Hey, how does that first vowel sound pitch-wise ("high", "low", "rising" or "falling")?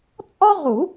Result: high